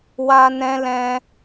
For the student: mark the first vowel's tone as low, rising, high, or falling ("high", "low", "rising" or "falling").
high